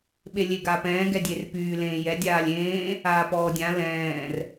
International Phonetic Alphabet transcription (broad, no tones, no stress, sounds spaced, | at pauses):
ɓ e lʲ e ɡ aː p ɛ̃ː ɡ ɛ dʲ e r p yː l ẽː j ɛ dʲ aː lʲ ẽː | aː p ɔː dʲ ã l ɛ̃ː r